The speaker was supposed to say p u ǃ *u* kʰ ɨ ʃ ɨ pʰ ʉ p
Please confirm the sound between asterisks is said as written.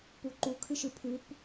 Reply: yes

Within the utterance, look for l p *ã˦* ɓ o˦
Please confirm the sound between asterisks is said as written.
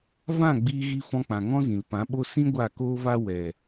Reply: no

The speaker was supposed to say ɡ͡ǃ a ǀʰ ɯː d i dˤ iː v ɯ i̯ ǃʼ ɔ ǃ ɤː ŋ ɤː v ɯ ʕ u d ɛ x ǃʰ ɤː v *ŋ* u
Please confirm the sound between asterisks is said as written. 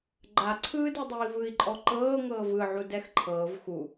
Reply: no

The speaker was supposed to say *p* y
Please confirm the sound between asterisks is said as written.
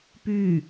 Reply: yes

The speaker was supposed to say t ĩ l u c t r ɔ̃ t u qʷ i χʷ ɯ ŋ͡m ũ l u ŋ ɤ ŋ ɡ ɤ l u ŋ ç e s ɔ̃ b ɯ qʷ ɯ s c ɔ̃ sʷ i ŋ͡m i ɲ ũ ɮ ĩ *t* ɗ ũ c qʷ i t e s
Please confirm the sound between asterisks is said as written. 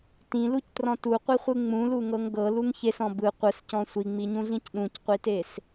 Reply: no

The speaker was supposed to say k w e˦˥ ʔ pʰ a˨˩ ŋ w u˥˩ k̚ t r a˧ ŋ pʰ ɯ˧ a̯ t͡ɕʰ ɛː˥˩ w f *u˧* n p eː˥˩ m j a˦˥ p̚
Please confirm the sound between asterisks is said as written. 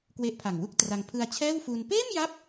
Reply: no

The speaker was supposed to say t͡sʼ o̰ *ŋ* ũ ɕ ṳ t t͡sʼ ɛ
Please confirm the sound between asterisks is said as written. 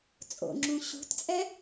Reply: no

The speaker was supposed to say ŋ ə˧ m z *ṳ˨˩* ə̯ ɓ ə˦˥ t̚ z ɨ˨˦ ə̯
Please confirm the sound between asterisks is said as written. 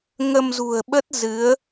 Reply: yes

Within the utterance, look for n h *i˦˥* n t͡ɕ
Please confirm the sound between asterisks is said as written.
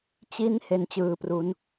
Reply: no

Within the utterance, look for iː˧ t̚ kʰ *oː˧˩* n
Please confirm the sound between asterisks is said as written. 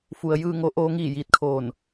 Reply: yes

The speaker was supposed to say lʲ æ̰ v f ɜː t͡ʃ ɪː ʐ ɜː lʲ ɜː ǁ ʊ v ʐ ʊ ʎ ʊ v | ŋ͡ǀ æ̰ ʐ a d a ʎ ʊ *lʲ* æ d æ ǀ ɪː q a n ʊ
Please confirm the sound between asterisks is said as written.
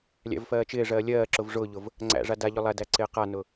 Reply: no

